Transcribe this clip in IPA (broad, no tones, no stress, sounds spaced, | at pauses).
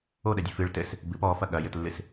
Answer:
o ɗ ɛ dʲ ɨ f ɨ ɭ t ɘ s | b ɨ p ɔ f ɐ ɠ ɐ j ɘ t lː ɨ s